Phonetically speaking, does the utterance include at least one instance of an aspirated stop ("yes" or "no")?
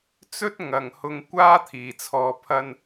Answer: yes